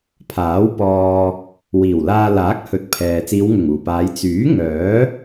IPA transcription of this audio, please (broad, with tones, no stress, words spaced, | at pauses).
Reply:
pʰaː˨˥wpɔː˧ | wiː˨˩wlaː˧laː˨˥k̚hɵ˨˥t̚ pʰɛː˨ t͡siː˨˧wŋʊ˨˩ŋuː˨˩paː˨˧j t͡syː˨˥ ŋœː˨˥